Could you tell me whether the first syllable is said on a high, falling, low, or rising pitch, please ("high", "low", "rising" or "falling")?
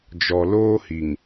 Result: low